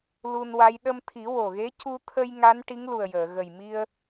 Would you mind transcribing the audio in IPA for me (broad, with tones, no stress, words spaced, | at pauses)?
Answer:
lu˧nwa˧˥j ɗə˧mt̪ʰi˨˩˦wo˨˩ɣe˧˥ cu˧t̪ʰə˧j ŋa˧˥n ʈi˧˥ŋlu˨˩ə̯jəː˨˩˨ ɣə˨˩jmi˧ə̯